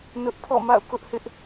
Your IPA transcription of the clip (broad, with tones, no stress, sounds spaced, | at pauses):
n ʊ˦ ʔ pʰ ɔ̰˦˨ m a̰˦˨ ʊ̯ k ʊ˦ ʔ h ɪ˦ ʔ